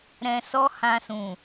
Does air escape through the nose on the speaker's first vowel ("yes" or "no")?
yes